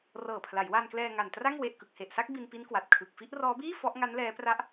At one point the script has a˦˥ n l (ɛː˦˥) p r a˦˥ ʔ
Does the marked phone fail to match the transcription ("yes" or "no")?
no